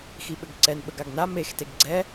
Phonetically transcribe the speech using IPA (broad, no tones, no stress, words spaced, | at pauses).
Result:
xiɓɘɡǀɛn ɓəɡaɡna mex teɡɡ͡ǀɛ